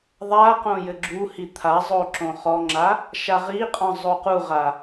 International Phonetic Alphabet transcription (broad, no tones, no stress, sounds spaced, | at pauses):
ðˤ a q õ j ɘ ɡ͡ǁ u h i t̪ʰ a zˤ o ǁ õ χ ɔ ŋ͡ǁ a | ʃ a ʁ i qʼ ɔ̃ zˤ o q u ʁ a